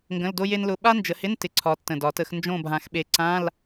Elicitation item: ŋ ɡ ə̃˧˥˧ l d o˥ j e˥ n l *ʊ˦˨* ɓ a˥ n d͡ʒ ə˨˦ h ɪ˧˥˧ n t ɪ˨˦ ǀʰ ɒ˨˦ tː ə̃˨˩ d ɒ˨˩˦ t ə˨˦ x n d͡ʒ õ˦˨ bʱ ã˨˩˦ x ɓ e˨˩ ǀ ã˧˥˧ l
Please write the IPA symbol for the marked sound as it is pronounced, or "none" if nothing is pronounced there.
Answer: ʊ˧˥˧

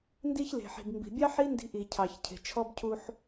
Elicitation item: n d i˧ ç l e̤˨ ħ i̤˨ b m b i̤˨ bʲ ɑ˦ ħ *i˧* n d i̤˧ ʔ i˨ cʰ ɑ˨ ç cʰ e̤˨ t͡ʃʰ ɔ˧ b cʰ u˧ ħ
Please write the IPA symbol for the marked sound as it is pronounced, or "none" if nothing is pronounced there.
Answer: i˦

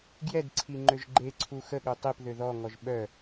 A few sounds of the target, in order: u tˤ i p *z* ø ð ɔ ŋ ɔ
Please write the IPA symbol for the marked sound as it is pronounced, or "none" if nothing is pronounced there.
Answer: ð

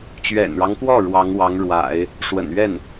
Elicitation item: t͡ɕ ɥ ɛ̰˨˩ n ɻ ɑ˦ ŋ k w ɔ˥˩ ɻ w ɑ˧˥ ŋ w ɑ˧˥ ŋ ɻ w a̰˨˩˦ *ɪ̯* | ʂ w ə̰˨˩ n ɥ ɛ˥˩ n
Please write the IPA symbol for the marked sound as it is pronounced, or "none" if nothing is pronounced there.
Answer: ɪ̯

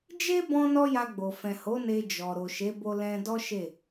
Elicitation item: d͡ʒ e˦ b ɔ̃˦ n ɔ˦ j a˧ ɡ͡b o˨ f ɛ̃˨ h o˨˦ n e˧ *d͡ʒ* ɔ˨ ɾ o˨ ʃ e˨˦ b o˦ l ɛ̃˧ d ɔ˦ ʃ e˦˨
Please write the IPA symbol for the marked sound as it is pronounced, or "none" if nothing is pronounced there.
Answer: d͡ʒ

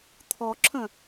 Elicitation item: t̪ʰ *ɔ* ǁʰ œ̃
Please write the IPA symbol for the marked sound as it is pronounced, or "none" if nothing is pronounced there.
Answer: ɔ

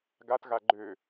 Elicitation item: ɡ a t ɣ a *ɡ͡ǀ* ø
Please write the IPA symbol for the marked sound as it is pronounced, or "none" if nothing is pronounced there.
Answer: ɡ͡ǃ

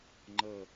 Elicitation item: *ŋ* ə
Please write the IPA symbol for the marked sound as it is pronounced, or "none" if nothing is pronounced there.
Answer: ŋ͡ǃ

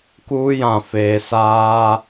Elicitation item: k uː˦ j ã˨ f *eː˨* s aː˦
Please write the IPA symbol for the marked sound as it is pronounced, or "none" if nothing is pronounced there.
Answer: eː˨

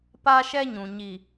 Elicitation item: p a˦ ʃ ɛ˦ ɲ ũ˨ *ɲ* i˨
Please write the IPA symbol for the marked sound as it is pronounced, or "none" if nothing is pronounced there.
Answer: ɲ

